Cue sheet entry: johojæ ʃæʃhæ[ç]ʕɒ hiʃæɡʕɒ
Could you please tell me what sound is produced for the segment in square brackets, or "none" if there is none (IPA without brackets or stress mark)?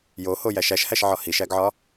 ʃ